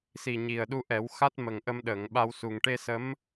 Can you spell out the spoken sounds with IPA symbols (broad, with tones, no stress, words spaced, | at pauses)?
si˨˩ɲi˨˩ə̯ɗu˧ʔɛ˨˩˦w xa˦˥t̚mə˨˩ŋ ʔə˧mɗəː˨˩˨ŋɓa˧wsu˨˩ŋ ʈe˧sə˧˥m